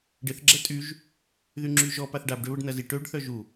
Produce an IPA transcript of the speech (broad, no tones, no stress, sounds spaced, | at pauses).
ɖ ɪ θ ɡ͡ǁ ɛ tʼ y ʒ | ð y ŋ͡ǁ y ʒ ɔ p a θ ɖ a b ɖ ø β ə ɖ n ɐ z i ʈ ø ɖ θ œ ʒ u